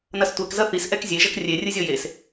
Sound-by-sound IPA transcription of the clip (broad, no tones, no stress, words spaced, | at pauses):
nɐstʷɛk zɐθis ʔɛkzʲe ʒɐkrʲe rʲɨzʲɔjes